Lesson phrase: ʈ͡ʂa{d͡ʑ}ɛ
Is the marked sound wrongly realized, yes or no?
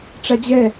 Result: no